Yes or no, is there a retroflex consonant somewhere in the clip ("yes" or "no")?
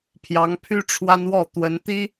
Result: yes